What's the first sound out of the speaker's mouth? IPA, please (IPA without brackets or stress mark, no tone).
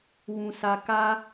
w